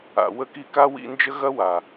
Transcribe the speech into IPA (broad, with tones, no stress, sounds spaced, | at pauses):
a̰˨ w ə˦ k i˦ k a˥ w ḭ˦ n d͡ʒ ə˥ ɣ ɐ˥ w a˩